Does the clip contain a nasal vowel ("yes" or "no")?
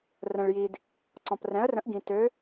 yes